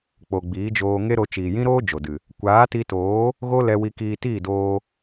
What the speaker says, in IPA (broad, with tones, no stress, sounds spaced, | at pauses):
k͡p o˨ ɡ͡b iː˨˦ d͡ʒ oː˧ ŋ e˦ ɾ o˧ t͡ʃ iː˨ j ĩ˦ ɾ oː˦ d͡ʒ o˨ d ɨ˨ | kʷ aː˨˦ t i˧ t oː˨˦ | ɣ o˦ l ɛ˧ w i˧ k iː˧ t iː˦˨ d oː˧